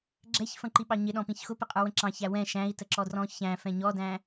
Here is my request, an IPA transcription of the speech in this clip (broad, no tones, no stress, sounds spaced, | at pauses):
ɡ͡ǁ ɛ ç f ə̃ ǃ i ɓ ɑ ɲ ɪ ɗ ɔ̃ p ĩ ç x ʊ p ɪ qʼ ə˞ w ə̃ ǁ ɑ̃ ç æ w ɛ̃ ʃ æ̃ i̯ t ə ǁ ɔ d r ɔ̃ ç æ̃ f ɛ̃ ɲ ɔ d æ̃